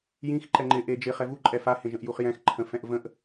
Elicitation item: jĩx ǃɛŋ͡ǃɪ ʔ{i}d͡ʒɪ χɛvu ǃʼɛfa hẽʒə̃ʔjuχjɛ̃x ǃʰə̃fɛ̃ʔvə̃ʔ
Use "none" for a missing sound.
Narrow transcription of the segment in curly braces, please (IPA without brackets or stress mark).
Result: e